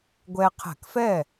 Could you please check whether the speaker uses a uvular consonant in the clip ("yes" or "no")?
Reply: yes